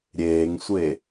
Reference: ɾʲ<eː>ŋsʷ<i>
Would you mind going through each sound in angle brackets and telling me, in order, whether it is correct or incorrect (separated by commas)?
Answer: correct, incorrect